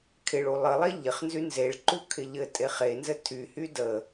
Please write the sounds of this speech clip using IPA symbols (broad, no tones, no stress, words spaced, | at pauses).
kʰɪɭu lˠəlˠe ʎɪχnzy nzeɭǃu kʰɪʎɘtʼe χenzɘ tʰyhy də